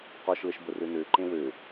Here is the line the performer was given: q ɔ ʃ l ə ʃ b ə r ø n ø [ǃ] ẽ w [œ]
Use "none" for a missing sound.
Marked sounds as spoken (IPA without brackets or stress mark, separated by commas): ǃ, ø